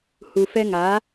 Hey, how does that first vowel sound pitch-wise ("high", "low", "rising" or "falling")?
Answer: low